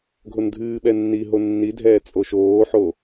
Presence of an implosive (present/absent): present